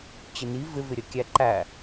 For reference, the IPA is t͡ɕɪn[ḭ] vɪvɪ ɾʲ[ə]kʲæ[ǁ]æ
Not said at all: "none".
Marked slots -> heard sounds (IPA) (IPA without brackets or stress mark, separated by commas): i, ə, ǃ